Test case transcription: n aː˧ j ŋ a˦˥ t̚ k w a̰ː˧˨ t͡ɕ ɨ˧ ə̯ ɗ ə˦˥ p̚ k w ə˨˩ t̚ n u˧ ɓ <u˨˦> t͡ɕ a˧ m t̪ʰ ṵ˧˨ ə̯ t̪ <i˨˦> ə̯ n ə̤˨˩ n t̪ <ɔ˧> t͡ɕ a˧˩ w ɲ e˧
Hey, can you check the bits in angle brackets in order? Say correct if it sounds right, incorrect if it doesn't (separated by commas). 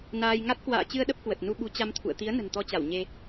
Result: correct, correct, correct